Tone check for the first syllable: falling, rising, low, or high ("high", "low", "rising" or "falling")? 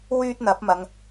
high